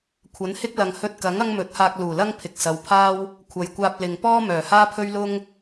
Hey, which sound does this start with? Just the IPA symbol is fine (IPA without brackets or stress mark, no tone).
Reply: kʷʰ